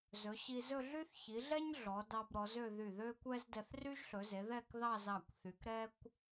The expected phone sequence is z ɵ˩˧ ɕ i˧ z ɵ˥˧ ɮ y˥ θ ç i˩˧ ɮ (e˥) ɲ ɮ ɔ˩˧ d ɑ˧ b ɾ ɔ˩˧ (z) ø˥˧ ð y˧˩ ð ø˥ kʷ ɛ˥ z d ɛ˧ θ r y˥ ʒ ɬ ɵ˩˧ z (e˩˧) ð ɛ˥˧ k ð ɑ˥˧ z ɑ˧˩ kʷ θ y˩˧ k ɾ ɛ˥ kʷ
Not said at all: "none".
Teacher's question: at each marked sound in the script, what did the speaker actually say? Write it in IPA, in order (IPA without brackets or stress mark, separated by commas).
ɛ˥, z, e˩˧